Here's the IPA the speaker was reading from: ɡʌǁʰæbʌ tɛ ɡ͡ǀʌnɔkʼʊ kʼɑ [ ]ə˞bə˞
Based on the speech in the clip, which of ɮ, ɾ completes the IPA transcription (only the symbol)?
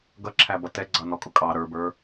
ɾ